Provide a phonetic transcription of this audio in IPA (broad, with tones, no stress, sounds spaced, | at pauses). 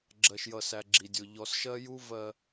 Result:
ɡ͡ǁ ɜ˨ ʃ j ʌ˨ s æ˨ ɡ͡ǁ i˨ dʲ ʊ˨ ʎ ɔ˨ s ʃ ɜ˦ j u˦ v ɜ˨